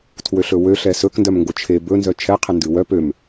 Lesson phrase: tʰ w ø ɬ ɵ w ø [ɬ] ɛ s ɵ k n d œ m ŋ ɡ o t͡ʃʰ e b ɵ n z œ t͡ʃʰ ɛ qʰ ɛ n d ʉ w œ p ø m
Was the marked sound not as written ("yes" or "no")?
no